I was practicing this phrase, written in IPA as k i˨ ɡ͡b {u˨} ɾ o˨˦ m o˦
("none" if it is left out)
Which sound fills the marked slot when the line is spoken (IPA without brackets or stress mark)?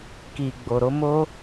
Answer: o˨